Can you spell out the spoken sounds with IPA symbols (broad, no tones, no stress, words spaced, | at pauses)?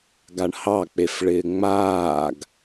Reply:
ɡaɳhɑk͡pefɭɪː ŋ͡maːɡ